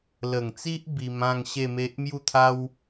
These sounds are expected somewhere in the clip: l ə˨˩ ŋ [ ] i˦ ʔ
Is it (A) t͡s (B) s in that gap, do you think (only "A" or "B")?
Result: A